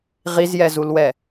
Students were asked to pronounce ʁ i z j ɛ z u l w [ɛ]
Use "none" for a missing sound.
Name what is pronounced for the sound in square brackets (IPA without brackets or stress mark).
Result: ɛ